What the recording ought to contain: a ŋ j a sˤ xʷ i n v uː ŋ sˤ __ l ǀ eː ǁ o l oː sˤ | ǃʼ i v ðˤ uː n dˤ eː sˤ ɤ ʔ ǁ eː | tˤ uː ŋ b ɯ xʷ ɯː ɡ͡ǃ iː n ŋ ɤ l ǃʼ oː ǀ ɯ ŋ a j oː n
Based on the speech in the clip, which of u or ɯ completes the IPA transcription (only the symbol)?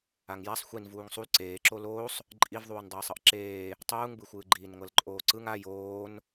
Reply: u